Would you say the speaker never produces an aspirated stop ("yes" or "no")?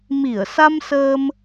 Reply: yes